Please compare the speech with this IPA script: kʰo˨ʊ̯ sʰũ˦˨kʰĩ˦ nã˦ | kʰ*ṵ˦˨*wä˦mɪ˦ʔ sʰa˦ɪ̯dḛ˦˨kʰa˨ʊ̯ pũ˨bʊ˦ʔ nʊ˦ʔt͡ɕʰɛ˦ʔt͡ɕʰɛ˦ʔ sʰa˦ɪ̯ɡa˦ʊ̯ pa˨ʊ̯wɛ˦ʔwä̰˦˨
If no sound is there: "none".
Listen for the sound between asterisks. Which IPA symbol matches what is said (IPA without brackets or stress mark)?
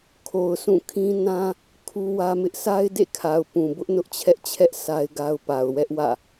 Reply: u˦